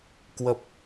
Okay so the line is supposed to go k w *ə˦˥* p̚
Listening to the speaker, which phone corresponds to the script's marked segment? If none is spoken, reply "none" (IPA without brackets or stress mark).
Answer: ə˦˥